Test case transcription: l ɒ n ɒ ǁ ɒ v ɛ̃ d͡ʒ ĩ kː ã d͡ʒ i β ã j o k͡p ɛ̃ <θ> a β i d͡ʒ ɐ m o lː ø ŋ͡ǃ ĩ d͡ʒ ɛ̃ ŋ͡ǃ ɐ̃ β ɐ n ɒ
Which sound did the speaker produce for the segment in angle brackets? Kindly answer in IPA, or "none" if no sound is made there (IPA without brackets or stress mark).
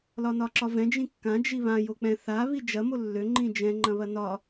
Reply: θ